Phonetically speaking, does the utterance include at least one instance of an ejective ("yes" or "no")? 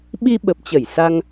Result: no